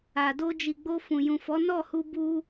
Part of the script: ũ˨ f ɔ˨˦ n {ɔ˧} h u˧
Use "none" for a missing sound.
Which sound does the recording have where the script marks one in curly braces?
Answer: ɔ˦˨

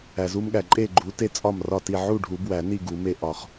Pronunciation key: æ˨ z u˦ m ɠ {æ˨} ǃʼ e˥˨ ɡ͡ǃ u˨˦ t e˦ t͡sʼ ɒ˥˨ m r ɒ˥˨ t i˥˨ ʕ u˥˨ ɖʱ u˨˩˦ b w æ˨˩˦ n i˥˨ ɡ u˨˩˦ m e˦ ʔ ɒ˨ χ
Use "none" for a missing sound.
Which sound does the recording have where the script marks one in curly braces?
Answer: æ˨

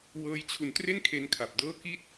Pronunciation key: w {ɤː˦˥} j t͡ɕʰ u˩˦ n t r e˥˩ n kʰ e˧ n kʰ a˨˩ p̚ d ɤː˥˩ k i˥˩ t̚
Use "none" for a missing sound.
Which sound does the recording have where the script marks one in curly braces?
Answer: ɤː˦˥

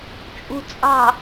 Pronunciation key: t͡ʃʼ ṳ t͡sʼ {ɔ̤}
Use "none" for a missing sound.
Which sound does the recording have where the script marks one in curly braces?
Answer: ɑ̤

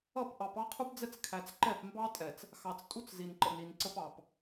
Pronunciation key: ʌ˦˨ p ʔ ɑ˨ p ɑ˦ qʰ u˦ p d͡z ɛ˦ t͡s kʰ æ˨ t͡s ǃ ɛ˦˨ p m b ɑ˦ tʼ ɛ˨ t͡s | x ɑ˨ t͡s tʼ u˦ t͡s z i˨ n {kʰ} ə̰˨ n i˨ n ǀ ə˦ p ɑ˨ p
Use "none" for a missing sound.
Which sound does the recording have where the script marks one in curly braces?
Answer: ǃ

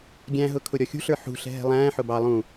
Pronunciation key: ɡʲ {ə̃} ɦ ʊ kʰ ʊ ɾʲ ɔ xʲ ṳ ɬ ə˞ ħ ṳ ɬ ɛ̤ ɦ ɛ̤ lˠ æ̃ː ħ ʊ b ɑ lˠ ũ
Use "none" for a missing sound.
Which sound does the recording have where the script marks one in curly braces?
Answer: æ̃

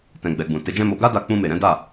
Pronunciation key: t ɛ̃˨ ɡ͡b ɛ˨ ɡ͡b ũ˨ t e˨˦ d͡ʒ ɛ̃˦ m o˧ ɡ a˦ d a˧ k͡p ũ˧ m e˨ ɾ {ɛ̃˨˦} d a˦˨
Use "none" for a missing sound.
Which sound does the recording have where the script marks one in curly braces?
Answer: ɛ̃˨˦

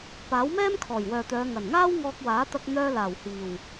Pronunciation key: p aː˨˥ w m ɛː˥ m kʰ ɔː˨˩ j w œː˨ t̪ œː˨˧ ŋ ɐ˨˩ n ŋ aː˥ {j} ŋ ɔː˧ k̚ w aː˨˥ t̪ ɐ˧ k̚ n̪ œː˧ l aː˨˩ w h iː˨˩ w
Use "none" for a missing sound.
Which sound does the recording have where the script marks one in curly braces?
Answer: w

